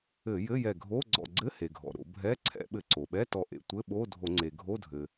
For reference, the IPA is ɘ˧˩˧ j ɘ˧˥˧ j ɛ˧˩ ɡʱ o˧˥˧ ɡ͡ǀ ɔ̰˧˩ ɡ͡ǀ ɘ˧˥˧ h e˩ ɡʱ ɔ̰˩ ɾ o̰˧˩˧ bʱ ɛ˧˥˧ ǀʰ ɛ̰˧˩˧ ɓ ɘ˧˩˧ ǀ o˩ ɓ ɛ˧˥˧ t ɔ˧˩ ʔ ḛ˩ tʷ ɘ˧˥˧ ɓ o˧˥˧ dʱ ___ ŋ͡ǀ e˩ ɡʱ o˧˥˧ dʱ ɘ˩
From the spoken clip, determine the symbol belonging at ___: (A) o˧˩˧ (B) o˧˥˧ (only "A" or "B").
A